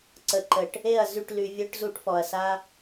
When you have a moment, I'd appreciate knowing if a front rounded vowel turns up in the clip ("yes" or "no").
yes